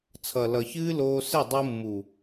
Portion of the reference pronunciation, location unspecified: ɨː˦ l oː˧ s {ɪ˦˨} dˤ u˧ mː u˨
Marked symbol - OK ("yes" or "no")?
yes